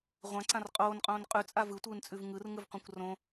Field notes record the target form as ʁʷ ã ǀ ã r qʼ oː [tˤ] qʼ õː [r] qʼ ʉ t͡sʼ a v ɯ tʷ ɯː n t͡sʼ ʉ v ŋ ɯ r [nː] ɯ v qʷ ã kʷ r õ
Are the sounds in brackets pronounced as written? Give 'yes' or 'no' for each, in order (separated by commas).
no, no, no